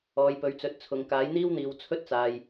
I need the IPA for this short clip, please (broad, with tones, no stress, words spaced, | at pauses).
ɔː˨˧j pɵ˨˥ɥt͡sɵ˨˥t̚t͡sʰʊ˨ŋ kaː˨˥jn̪iː˥wn̪iː˨w t͡sʰɵ˥t̚t͡saː˨j